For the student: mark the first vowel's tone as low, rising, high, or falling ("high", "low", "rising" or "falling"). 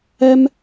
high